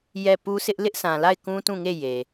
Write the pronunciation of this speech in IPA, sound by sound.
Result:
j ɛ˦˨ p u˦ s ɪ˦ ʔ l ɪ˦ ʔ s ã˨ l a˦˨ ɪ̯ k ũ˦ t ũ˦˨ ŋ e˦˨ j e˨

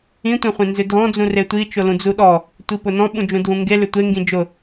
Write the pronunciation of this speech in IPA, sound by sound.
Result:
ĩ tʷ ẽ χʷ ẽ n z ʏ dʱ ɔ̃ d͡z ũ r e tʷ i t͡ʃ ʊ l ũ d͡z u ɗ ɔ | tʷ i p ʊ n ɔ̃ ɓ ũ d͡ʒ ũ dʱ ũ ŋ ɡ e l ʏ tʷ e ŋ ɡ ĩ d͡ʒ ʊ

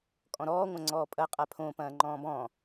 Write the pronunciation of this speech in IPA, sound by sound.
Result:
kʼ ɔ̃ ɾ ɔː ŋʷ ɐ̃ ŋ͡ǀ ɔː pʼ ɐ qʼ a pʰ õ p ɐ̃ː ŋ͡ǃ ɔ̃ː b ɔ̃ː

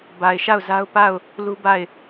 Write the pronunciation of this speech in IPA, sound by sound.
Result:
b a˨ ɪ̯ ʃ a˦˨ ʊ̯ z a˦ ʊ̯ p a˦˨ ʊ̯ | l u˦ b a˦˨ ɪ̯

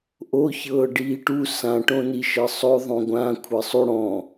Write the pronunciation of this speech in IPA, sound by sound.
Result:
ʔ o ç ɤː ɖ iː ʈ u s ã ʈ õ n i ʃ ɤ sˤ o ðˤ õ ɡʷ ã kʷʰ ɤ sˤ u ɽ ɔ̃

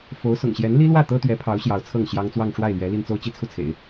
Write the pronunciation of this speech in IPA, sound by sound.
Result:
f o˧˥ ʊ̯ s ʊ̰˨˩ ŋ ɕ j ɛ˧˥ n l i˥ l w ä˥˩ t̪ ɤ˥ t̪ ɥ ɛ˧˥ pʰ ɑ˧˥ ʊ̯ ɕ j ɑ˧˥ ʊ̯ t͡sʰ ɤ˥˩ ŋ ɕ j ɑ˥ ŋ t͡s w ɑ˥˧ ŋ ʈ͡ʂ w a˥˩ ɪ̯ l ɥ ɛ˧˥ l i˥˧ n t͡s o˥˧ ʊ̯ t͡ɕ i˥˧ t͡sʰ u˥˩ t͡sʰ ḛ˨˩˦ ɪ̯

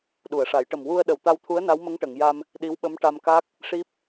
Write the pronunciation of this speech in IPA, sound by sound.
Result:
ɗ u˨˩˨ ə̯ ʂ a˨˩˦ j ʈ ə˨˩ m w u˧ ə̯ ɗ ə˨˩ w t̪ a˧ w t̪ʰ u˧˥ ə̯ n a˧˥ w m ə˧˥ ŋ ʈ ə˨˩˨ ŋ j a˧ m | ɗ i˧˥ w ɓ ə˧˥ m ʈ a˧ m k a˦˥ k̚ | ʂ i˦˥ p̚

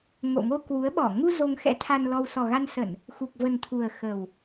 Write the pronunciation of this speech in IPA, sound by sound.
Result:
ŋ o̰˧˨ ŋ o˧ k w u˨˦ ə̯ ɓ ɔ˧˩ ŋ u˧ z o˧ ŋ x ɛ̰˧˥ t̪ʰ a˧ n l ɔ˧ w s ɔ˨˩ ɣ a˧ n s ə˧˩˨ n | x u˨˩ k̚ v ə˨˩ n t̪ʰ u˨˩ ə̯ x ə˨˩ w

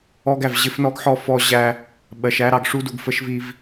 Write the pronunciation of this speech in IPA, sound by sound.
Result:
ɔ˦ ɡ æ˨ v ʑ ɪ˦ f n ɔ˦ ɡ ħ ɔ˦ f ɔ˦ ʑ æ˦ | ɓ ɜ˨ ʃ æ˦ ɾ ɑ˨ ɡ ʂ u˦ d u˨ ɡ f ə˦ ʃ v i˦ v

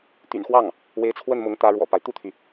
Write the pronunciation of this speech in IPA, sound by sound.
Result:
t̪ y̰˨˩ n x w ɑ˥˩ ŋ | w e˧˥ ɪ̯ t͡sʰ w ə˥˩ n m ʊ˧˥ ŋ t̪ ä˧˥ ɻ w ɔ̰˨˩ p a˦ ɪ̯ t̪ u˥˩ t̪ʰ y˩

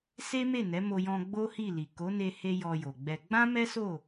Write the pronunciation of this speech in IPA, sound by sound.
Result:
s e˦ m e˦˨ n ɛ˨˦ m o˧ j ɔ̃˧ ɡ͡b o˦ h i˦˨ l i˨ k o˨˦ n e˧ h e˧ j ɔ˧ j o˨ ɡ͡b ɛ˧ ɡ͡b ã˦ m ɛ˦ s o˦˨

